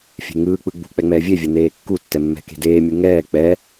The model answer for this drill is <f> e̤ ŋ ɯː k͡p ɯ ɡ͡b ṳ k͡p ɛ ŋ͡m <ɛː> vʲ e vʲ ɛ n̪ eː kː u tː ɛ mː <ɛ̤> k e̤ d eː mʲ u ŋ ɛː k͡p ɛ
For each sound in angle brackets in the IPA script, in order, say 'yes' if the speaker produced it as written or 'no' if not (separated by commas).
no, yes, yes